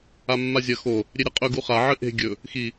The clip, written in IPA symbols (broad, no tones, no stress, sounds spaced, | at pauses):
a mː a zʲ ɐ x o | ɾʲ e ɾʲ ɐ qʼ ɵ ɡ u χ a ʕ ɨ ʔ e̤ ɡʲ ɵ | x i